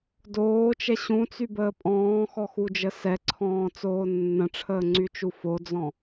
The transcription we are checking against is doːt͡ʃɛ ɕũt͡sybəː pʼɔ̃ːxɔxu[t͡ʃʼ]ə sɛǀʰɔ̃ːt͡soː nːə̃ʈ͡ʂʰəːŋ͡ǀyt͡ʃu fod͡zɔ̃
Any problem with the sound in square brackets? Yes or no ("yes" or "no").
yes